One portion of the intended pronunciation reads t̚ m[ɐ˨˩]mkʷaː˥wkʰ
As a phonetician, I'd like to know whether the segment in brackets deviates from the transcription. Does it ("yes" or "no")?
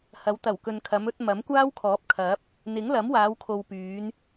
yes